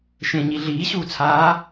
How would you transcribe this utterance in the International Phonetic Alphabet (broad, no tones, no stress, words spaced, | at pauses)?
ʃẽɲi ɮiːɕuːt͡sʰaː